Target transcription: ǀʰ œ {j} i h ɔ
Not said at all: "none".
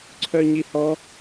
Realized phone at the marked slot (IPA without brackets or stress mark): ɲ